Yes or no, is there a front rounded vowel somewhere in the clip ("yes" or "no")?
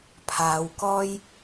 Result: no